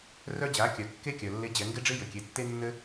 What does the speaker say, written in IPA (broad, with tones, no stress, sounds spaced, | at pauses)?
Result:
r œ˧ d͡ʑ a˩˧ kʲ œ˩ kː e˥ kʲ œ˩ lː e˧˥ d͡ʑ ɛ˩˧ ŋ ɡ ɪ˥ ɖ͡ʐ ɪ˥ j ɘ˩ kʲ e˩˧ tː e˥ nː ɘ˥